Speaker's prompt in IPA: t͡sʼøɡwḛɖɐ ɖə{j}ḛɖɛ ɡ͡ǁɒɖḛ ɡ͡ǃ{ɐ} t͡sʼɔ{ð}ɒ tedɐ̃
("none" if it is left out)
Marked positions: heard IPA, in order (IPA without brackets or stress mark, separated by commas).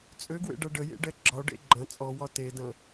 j, ɐ̃, w